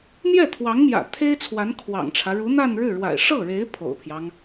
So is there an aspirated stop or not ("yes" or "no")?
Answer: yes